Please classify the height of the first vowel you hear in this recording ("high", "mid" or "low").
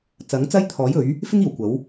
low